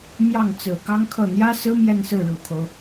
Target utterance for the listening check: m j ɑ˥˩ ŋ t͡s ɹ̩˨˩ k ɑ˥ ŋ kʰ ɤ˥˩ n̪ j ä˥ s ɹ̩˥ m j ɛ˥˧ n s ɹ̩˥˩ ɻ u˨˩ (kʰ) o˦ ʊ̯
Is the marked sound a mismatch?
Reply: no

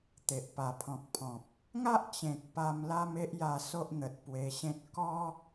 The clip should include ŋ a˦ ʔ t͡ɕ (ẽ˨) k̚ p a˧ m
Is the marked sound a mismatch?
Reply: no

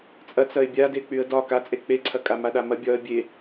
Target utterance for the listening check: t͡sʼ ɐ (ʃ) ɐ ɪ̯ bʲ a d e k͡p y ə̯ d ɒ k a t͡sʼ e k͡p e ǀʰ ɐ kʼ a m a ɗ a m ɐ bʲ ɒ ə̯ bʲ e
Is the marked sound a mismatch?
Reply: yes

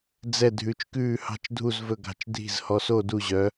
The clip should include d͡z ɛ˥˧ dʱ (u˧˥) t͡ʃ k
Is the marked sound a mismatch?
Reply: yes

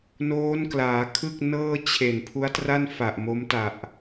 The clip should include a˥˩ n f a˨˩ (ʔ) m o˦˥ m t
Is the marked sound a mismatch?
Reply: no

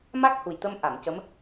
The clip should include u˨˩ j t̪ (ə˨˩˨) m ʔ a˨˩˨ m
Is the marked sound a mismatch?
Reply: yes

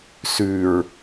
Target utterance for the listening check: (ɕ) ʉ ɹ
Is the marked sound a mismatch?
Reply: yes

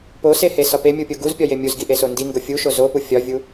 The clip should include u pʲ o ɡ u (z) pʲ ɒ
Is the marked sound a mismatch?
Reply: no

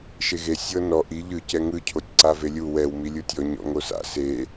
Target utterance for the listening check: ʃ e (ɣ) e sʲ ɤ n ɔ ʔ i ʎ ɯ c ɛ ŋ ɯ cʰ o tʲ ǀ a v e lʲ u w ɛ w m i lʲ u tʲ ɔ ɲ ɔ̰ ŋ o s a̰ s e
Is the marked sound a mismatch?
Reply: no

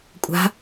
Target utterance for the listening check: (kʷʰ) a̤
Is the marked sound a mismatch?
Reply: yes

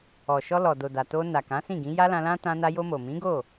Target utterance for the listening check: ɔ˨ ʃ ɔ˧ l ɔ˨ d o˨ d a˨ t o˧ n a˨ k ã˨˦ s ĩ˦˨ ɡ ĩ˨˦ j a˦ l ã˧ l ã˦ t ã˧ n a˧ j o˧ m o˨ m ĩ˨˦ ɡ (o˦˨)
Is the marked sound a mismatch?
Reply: no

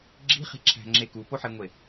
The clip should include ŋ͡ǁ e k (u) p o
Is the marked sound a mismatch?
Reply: no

